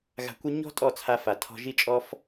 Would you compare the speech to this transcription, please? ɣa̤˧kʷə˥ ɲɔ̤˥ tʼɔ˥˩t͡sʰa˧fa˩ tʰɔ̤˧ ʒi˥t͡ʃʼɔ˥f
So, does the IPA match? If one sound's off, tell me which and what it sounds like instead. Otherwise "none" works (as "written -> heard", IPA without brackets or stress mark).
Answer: none